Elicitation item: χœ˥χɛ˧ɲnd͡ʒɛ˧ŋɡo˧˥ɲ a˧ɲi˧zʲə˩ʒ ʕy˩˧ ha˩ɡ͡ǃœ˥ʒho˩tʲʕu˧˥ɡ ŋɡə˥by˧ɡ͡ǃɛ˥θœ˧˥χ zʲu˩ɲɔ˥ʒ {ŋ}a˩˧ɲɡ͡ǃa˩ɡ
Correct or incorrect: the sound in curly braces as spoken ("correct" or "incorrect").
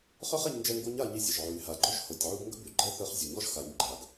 incorrect